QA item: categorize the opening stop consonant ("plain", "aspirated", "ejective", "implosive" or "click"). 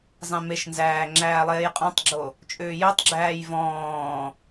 click